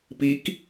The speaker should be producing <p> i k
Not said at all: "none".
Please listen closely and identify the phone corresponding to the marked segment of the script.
p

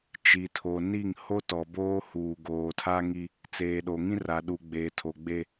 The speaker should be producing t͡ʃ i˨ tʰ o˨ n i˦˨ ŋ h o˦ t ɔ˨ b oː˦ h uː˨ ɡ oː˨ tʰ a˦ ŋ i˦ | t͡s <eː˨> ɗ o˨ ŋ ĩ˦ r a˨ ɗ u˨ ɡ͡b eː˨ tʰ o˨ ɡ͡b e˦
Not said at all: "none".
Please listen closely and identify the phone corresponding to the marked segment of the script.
eː˨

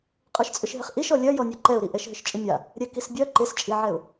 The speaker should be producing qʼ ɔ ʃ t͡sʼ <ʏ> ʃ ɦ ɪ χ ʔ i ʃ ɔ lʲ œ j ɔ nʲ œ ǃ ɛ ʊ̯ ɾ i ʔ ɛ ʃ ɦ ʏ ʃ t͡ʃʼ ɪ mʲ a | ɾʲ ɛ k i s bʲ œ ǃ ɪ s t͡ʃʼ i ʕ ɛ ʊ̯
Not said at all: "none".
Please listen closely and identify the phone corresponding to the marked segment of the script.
ʏ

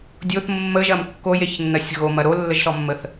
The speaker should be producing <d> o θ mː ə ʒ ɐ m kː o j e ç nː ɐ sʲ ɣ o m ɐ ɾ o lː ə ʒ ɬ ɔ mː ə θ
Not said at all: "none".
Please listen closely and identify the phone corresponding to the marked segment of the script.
dʲ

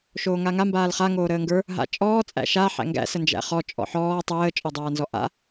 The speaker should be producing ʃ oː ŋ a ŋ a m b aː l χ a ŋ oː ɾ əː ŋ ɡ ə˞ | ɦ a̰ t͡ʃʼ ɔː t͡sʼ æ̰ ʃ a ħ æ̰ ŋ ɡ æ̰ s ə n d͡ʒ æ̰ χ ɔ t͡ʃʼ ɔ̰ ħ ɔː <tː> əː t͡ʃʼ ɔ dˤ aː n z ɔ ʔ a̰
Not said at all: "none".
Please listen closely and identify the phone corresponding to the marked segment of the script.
tˤ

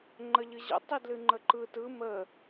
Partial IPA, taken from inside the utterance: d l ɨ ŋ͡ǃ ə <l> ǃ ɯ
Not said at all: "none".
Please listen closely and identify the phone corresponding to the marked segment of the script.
none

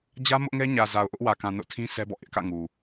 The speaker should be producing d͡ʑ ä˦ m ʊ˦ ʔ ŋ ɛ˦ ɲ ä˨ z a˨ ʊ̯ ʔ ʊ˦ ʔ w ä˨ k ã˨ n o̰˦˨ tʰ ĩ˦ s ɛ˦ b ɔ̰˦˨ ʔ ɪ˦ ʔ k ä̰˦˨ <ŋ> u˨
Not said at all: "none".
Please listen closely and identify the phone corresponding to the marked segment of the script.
ŋ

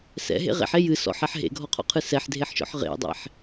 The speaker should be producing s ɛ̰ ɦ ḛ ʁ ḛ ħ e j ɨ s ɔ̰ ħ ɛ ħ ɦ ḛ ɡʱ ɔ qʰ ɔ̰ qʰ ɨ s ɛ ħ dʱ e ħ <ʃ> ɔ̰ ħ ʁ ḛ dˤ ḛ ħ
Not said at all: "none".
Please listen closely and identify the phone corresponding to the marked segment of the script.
ʃ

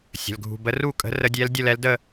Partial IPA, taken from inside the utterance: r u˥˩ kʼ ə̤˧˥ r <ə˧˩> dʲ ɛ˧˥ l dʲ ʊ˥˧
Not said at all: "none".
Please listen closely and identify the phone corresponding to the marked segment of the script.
ə˧˥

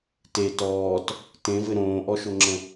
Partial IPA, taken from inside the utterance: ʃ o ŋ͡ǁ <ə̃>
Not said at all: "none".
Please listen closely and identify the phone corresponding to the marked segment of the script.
ə̃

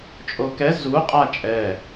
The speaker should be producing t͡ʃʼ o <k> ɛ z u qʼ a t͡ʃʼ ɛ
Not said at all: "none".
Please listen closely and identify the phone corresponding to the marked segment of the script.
k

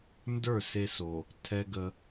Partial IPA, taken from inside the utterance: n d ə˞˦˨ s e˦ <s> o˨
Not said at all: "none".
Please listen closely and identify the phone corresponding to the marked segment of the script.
s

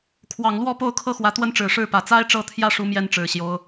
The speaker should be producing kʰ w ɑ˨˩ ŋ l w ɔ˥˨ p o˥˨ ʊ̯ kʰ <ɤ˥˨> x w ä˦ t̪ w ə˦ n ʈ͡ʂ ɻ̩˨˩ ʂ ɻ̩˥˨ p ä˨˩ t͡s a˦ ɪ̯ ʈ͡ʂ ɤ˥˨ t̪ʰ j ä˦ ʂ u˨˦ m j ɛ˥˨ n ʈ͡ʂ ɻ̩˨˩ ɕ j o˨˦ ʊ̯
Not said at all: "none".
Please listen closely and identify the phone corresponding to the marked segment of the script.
ɤ˦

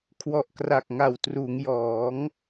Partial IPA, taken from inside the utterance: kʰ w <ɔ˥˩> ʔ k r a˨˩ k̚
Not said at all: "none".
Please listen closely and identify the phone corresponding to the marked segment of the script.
ɔ˨˩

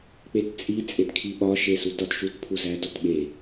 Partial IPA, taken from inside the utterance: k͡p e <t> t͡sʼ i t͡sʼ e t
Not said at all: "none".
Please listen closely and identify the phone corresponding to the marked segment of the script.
t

